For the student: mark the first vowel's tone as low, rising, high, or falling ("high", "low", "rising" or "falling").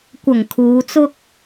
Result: low